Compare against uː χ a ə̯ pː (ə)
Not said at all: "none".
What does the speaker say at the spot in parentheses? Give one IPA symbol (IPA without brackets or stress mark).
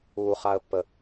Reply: ə